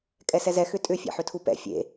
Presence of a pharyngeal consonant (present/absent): present